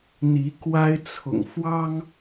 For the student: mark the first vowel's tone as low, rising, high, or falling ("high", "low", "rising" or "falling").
rising